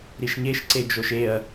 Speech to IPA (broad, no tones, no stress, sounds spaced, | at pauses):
ɾ i ʃ ɲ e ʃ ǀ e d͡ʒ o ʃ e ɐ̯